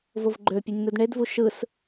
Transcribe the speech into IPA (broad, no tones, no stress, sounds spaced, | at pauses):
v o v ɡ͡ǃ ø pʲ o nʲ n̪ ɯ d ɳ e d v u ʃ ɯ s